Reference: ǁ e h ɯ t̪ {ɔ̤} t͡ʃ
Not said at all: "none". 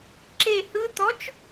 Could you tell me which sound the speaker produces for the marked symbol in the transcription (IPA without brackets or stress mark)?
ɔ